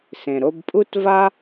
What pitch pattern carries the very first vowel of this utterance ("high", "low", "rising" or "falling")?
low